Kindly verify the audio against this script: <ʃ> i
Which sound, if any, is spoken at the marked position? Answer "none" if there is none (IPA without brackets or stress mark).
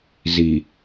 z